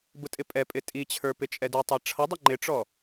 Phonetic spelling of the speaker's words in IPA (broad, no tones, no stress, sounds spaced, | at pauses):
b ʊ tʼ ɪ pʼ ɛ pʼ ɪ tʼ i t͡ɕʰ ə˞ p ɪ t͡ʃʼ ɛ d u tˤ æ ʈ͡ʂʰ ʌ dˤ ʌ ŋ͡ǃ ɪ ʈ͡ʂ ɔ